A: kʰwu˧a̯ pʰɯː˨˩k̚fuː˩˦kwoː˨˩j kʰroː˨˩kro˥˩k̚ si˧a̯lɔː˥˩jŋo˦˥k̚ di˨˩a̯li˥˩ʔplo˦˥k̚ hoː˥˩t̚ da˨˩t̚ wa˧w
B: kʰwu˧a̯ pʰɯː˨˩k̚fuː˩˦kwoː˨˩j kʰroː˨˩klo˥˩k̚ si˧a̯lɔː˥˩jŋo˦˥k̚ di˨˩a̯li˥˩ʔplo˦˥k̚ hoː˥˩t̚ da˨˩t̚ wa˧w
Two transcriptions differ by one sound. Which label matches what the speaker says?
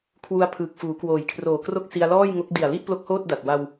A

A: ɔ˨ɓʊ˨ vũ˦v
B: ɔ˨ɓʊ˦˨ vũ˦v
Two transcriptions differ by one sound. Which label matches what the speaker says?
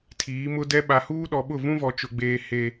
B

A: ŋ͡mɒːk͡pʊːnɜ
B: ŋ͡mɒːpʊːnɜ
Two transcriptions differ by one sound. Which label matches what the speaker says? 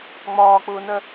A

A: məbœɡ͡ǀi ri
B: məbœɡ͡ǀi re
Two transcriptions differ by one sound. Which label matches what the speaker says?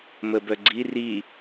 A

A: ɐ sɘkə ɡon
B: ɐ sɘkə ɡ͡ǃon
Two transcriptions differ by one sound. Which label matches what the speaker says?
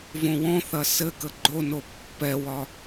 B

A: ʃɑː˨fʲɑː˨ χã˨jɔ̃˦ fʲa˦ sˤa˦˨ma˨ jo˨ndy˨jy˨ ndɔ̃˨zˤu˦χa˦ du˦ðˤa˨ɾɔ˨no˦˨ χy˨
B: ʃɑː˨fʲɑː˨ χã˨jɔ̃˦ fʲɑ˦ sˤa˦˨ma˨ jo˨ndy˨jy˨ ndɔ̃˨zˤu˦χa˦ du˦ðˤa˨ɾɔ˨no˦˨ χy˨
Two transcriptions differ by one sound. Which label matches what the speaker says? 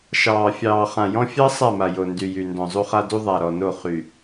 B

